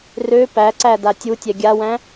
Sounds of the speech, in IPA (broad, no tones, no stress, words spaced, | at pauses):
rø pæǀæ datʲutʲɛ ɡʲawæ̃